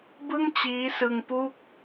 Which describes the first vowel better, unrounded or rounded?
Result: unrounded